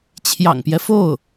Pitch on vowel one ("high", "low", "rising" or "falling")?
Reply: low